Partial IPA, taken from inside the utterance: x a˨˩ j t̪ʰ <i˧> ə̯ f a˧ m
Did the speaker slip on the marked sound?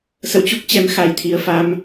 yes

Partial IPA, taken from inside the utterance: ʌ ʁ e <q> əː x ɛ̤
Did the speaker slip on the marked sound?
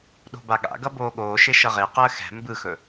no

